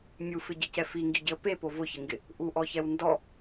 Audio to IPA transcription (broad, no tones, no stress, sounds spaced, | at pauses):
mʲ u f ɪ ɟ i c ɛ f i ŋ ɡ i ɟ ɪ ə̯ p e p o v ʊ ç ɪ ŋ ɡ ɪ | ʔ u ʔ ɔ ç ɛ w n d ɔ